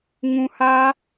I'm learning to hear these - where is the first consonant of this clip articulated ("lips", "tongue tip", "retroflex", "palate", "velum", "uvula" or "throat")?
velum